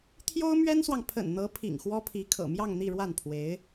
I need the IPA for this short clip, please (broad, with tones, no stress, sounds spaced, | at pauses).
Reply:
t̪ʰ j o˥ ʊ̯ m ɥ ɛ˥ n s w ɑ˨ ŋ pʰ ə̰˨˩ n n̪ ɤ˧˥ pʰ ḭ˨˩ ŋ x w ɔ˥ pʰ i˧˥ kʰ ɤ̰˨˩ m j ɑ˥˧ ŋ n̪ i˥˧ ɻ w a˥˩ n pʰ w e˧˥ ɪ̯